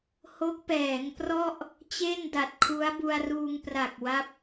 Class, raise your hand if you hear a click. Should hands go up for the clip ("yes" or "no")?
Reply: no